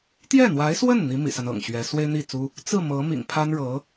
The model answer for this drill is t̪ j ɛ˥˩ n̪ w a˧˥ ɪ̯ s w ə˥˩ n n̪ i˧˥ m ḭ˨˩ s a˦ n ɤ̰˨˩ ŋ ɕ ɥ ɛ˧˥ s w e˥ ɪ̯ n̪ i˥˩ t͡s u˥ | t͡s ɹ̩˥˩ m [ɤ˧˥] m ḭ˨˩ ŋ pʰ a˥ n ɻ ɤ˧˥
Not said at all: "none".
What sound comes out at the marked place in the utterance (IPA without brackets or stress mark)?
ɤ˧˥